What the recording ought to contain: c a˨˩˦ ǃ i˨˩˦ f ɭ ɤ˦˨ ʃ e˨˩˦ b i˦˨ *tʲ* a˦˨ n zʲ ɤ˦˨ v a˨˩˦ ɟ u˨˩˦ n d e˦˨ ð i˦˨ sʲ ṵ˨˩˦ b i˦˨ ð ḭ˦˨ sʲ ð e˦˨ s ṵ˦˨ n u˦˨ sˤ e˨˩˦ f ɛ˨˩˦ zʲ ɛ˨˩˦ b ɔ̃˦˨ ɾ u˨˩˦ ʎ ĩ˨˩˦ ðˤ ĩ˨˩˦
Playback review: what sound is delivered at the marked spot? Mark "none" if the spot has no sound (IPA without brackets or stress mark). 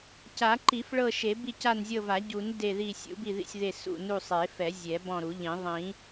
c